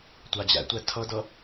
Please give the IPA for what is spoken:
tʷ a d͡ʑ æ̰ tʷ æ tʰ ʌ d ʌ

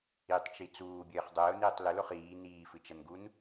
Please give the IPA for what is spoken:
i tˤ t͡ʃ i t͡s uː bʲ ɘː χ dˤ ɘː ʊ̯ n iː tˤ l ɘ l o χ iː n iː f ɨ t͡ʃ ɐ n ɡ u n

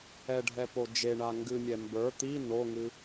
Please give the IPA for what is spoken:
ɛ ɖʱ ɛ p o d͡ʒ e ɳ a ŋ ɡ ɨ mʲ ɛ m b ə˞ t̪ i n o ŋ ɨ

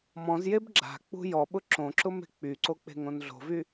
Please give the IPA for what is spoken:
m ɔ̃ z j e b ɡ͡ǁ a̤ k͡p ṳ j ɔ ɓ ʊ ǁ õ ǁ ʊ m e̤ k͡p y ǀ o k͡p e̤ ŋ õ n ɮ o̤ v y

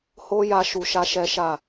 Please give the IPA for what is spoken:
h o˦ j a˧ ʃ u˧ ʃ a˦ ʃ ɛ˦ ʃ a˦˨

